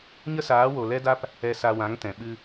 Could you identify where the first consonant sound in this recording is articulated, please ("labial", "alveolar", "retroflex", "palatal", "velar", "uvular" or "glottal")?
palatal